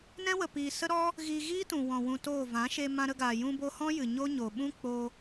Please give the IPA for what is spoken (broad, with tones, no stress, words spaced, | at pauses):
nɛ̃˦wə˨piː˨ sə˦ɾɔ˦ | ɣiː˧ɣiː˦tũ˨wɔ̃˨ wũ˧toː˦˨ vã˨˦ʃe˧ mã˧ɾə˧ɡaː˨ jũ˧bo˧hɔ̃˦ jɨ˨ɲo˦ɲo˨ ɓũ˦ k͡po˧